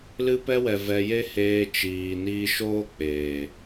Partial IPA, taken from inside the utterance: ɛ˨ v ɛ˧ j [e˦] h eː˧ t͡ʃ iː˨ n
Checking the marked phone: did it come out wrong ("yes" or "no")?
no